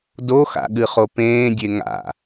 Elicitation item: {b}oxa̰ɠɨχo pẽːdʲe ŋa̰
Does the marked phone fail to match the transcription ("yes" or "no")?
yes